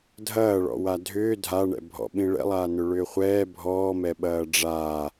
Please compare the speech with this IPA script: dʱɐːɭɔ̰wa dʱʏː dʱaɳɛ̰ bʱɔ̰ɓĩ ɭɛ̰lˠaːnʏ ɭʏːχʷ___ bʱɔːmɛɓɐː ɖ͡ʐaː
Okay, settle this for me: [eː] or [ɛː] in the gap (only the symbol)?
ɛː